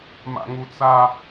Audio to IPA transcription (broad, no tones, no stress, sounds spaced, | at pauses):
m a̰ ŋ u t͡s a